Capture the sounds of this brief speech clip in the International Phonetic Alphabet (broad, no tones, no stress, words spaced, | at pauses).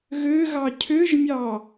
ɣøɣɑ cʰøʒmʲɑ